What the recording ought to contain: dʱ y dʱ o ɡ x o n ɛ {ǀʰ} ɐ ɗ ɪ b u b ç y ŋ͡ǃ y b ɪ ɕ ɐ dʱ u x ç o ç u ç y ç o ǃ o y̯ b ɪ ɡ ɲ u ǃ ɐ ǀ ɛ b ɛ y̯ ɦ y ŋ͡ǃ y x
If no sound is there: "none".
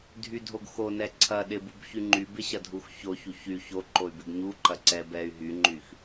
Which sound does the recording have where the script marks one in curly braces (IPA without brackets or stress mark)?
ǀʰ